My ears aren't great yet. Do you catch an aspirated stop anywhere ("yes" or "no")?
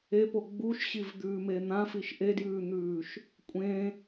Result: no